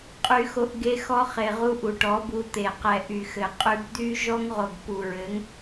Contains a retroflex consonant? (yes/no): yes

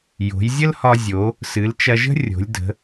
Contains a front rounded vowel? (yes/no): no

